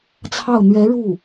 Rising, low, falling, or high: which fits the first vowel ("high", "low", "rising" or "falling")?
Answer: falling